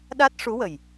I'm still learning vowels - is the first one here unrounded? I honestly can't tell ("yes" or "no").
yes